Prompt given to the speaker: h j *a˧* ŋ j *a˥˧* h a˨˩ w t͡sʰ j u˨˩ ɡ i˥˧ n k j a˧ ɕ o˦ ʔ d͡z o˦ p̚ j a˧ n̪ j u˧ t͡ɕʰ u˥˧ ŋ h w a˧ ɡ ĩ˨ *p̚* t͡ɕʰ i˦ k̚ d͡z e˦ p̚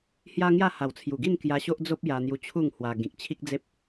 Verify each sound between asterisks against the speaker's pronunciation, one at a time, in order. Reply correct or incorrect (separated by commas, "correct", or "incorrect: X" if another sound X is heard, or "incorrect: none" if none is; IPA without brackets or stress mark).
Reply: incorrect: a˦, correct, incorrect: k̚